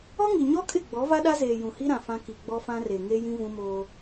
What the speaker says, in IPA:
ɔ˦ŋi˨ɲɔ˦kʼɪ˦˨ ɡ͡bɔ˨˦va˦ɗa˦zeː˨ jũ˨hi˦ɾã˨ fã˦ ki˨ ɡ͡bɔ˦fã˦ re˨ ŋe˦jĩ˦ vũ˦moː˦

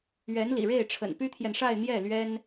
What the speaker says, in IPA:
ɥɛ˧˥n lḭ˨˩ɻe˥˩ɪ̯ʈ͡ʂʰə̰˨˩n py˥t̪ʰjɛ˨nʂa˥˧ɪ̯n̪jɛ˥˩ lɥɛ˥n

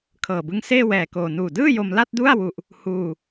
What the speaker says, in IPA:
kʰɤː˨˩bɯ˦˥ŋ seː˥˩wɛː˨˩koː˨˩ nuː˨˩dɯː˥˩jo˧m la˥˩t̚du˥˩a̯ wu˨˩ʔ | huː˧

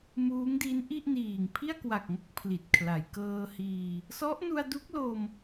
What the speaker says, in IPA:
muː˦˥ŋdi˦˥nʔi˥˩ʔniː˨˩ŋ pʰi˥˩a̯kwa˨˩k̚ŋo˥˩k̚ pʰli˨˩t̚kʰla˩˦j kɤː˧hiː˧ | sɔ˦˥ʔnu˧a̯du˦˥k̚lo˧m

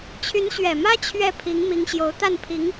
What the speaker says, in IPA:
t͡ɕʰy˧˥nɕɥɛ˨˩mä˥ t͡ɕʰɥɛ˥˩ pʰi˧˥ŋmi˧˥ŋɕjo˧˥ʊ̯ t̪a˥˩npʰi˧˥ŋ

